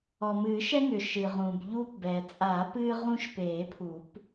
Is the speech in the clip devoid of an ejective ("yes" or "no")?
no